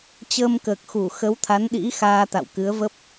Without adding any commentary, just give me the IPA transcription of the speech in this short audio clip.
t͡ɕ əː˧ m k əː˨˩ k̚ x u˧˩ x ə˨˦ w t̪ʰ a˨˦ n ɗ ḭ˧˥ x aː˧ t̪ a̰˧˨ w k ɨ˨˦ ə̯ v ə˦˥ p̚

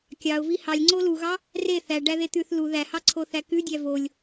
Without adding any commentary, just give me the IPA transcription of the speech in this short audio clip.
kʲ ɑ ʊ̯ v i h ɑ lʲ ŋ͡ǀ o l u ɣ ɑ | r e θ æ ɖ æ ð e t̪ ʉ θ l u ð æ h ɑ ǀʰ o θ æ k ʉ dʲ æ v o lʲ

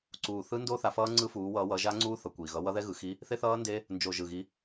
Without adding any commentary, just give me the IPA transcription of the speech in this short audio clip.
ǀ uː˨˩ θ ɯ˦˥ n d o˦˥ θ a˨˦ f ʌː˦˥ ŋ͡ǀ ɯ˦˥ f uː˨˦ w ʌː˨˦ w ʌː˨˦ ʒ a˦˥ ŋ͡ǀ uː˦˥ θ ʌ˨˩ kʷ i˨˩ ɣ ʌ˨˦ w ʌ˦˥ ð ɛ˦˥ ɣ ɯ˨˦ x i˦˥ | θ e˦˥ θ ʌː˦˥ n d e˦˥ | n d͡ʒ o˨˩ ʒ ɯ˨˩ ɣ i˨˦

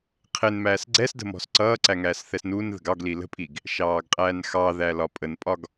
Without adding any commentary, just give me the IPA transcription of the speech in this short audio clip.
qʰ ɪ n m æː s ɡ͡ǀ ɛ s d ə̤ m ɔ̤ s ǀ ʌː ǀ æ ŋ æː s θ ɛ s n uː n ð ə̤ ɡ ɑ ɡ l i l ə̤ pʼ i ɡ | ʃ ɑː ɡ qʼ æː n x ɑ ð æ l ɒ pʼ ə n pʼ ɒ ɡ

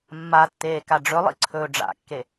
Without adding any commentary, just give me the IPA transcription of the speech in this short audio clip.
mː a tː eː k a ɖ͡ʐ ɵ lˠ ḭ ǀʰ ɵː ɖ͡ʐ a̰ kː e

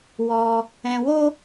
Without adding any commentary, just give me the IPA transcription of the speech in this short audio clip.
w ɔ˧ | ɛ̃˧ w o˦

